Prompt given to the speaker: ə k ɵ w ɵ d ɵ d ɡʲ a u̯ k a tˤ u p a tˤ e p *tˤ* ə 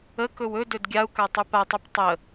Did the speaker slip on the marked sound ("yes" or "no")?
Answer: no